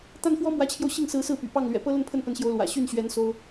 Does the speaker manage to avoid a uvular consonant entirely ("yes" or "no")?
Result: yes